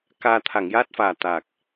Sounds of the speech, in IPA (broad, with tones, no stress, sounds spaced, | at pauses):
k aː˧ t̪ʰ a˨˩˨ ŋ j aː˦˥ t̚ f aː˨˩ t̪ a˨˩ k̚